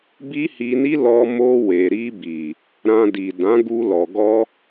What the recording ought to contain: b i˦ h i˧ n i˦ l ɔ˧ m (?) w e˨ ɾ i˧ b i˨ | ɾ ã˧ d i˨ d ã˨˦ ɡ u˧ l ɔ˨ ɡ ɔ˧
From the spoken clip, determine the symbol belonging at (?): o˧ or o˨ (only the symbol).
o˧